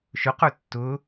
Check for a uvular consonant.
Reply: present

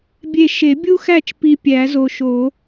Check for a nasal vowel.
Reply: absent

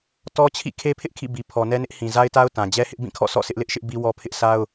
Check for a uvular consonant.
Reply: absent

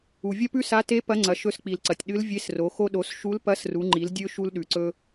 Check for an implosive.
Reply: present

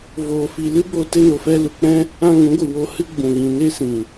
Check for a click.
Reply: absent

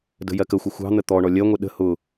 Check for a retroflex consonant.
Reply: present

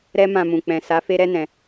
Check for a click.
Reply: absent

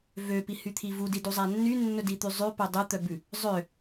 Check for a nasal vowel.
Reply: absent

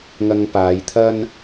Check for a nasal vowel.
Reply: absent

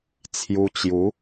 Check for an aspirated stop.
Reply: present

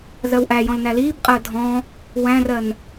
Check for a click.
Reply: absent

